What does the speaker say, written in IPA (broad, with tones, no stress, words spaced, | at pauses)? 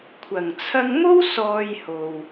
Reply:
kʷʰɐ˨˩ŋt͡sʰɐ˧ŋmo˥w sɔː˧jho˨w